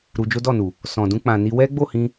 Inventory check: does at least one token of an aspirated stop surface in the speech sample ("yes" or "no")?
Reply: no